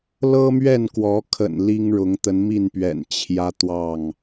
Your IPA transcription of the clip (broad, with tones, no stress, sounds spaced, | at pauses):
l ɤ˦ m ɥ ɛ˥˨ n k w ɔ˨˦ kʰ ə̰˨˩ n l i˦ ŋ ɻ ʊ˨˦ ŋ t̪ ə˨˦ n m i˥˨ n p ɥ ɛ̰˨˩ n t͡ɕʰ j ä˦ t̪ w ɑ˥˨ ŋ